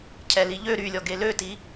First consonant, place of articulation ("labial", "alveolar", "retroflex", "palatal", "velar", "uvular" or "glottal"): palatal